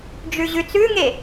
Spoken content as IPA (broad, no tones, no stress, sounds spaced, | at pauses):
d͡ʒ ʉ ʑ ʉ t͡s ʉ ŋ e